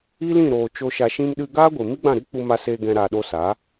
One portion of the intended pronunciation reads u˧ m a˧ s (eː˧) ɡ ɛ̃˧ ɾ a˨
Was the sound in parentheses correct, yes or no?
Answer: yes